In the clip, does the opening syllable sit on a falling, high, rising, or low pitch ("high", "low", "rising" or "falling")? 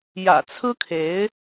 low